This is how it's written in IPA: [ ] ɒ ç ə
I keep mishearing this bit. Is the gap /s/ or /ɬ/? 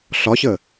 ɬ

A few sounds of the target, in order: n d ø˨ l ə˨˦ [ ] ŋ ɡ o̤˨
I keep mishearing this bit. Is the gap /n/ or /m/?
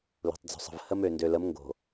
m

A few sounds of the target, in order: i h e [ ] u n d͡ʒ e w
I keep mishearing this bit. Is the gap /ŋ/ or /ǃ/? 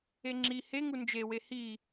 ŋ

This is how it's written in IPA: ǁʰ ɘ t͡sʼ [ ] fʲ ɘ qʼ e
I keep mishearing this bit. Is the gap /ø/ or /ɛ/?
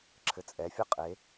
ɛ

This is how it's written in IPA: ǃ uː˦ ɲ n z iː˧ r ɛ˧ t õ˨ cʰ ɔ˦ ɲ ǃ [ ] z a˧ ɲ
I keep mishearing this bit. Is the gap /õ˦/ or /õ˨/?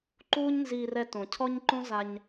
õ˦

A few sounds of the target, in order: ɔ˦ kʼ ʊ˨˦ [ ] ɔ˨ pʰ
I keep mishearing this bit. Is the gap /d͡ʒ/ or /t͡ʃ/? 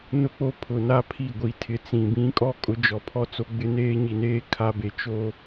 d͡ʒ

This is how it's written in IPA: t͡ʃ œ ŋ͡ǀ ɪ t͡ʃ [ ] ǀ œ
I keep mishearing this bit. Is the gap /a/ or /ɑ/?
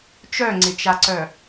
a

